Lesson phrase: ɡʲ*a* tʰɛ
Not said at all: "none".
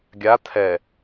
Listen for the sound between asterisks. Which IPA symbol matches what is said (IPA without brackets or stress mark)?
a